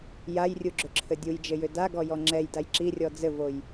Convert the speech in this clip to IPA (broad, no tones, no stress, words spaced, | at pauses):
jajrʲuɡ͡ǁʏǁʰɘ dʲujd͡ʒɘjʏ daɡɔjɔ ŋ͡ǁɛjdaj ǁirʲɔ d͡zɘvoj